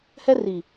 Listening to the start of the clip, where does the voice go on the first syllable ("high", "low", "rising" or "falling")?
high